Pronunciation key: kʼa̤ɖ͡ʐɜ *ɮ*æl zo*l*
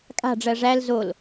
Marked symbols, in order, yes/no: no, yes

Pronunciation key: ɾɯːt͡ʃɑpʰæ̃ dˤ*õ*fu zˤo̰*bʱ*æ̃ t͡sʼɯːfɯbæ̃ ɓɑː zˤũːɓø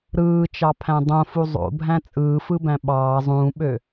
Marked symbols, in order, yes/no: yes, yes

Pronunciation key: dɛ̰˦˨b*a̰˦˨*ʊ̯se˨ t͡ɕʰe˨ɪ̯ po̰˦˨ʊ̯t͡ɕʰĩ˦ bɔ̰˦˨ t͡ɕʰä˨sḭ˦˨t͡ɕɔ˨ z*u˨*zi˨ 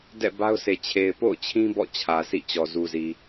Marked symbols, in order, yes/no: no, yes

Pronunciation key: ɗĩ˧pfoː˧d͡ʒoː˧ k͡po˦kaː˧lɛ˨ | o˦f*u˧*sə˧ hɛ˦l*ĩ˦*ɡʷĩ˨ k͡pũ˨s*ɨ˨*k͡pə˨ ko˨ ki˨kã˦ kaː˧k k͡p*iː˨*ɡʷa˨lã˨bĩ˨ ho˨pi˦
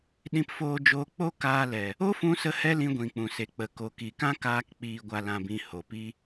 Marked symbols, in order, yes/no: no, no, no, yes

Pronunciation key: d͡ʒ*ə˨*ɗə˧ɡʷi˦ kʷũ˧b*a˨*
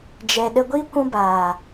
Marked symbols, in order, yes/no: no, no

